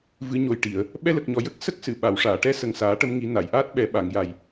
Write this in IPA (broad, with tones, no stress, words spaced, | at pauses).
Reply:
vɨ˨˩˦ɲo˨˩jʈi˨˩˨ə̯ | ɓɛ˧lə˨˩k̚ɲɔ˨˩ jə˦˥k̚ sə˦˥k̚sɨ˨˩˨ ɓa˨˩˨wʂaː˨˩˨ ʈɛ˧˥ sə˨˩ŋsaː˨˩˦ʈə˧mŋi˨˩˦ na˨˩˨jʔaː˦˥t̚ɓɛ˨˩˦ ɓa˨˩˨ŋ ja˨˩j